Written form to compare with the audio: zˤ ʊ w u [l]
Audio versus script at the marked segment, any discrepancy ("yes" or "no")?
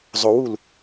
no